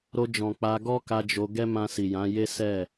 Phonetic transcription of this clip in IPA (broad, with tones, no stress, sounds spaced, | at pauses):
ɾ o˧ d͡ʒ ɔ̃˨ k͡p a˧ ɡ ɔ˦ k a˧ d͡ʒ o˧ ɡ ɛ˦ m ã˧ s i˨ j ã˨˦ j e˦ s ɛ˦˨